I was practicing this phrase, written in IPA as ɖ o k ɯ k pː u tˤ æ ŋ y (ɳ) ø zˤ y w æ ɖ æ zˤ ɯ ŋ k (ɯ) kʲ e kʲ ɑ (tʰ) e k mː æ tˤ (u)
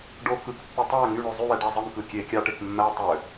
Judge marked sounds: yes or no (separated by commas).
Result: yes, yes, no, no